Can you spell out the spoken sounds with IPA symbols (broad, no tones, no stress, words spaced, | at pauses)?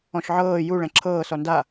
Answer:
ɔ̃ʃʕɤː ju ɭɛ̃ǁʰɤː sɔnda